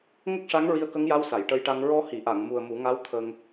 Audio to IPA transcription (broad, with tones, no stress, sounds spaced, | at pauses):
ŋ ə˦˥ k̚ ʂ a˧˥ ŋ ɹ i˧ ə̯ k ə˧˥ ŋ j a˧˥ w s a˨˩˨ j ʈ ə˧ j ʈ a˧ ŋ ɹ ɔ˧ h i˨˩˨ ʔ a˨˩˨ ŋ m u˨˩ ə̯ m u˨˩˦ ŋ a˧˥ w t̪ʰ ə˧ ŋ